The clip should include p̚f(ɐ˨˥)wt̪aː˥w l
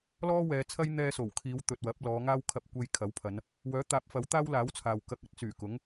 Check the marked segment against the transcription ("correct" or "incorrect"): correct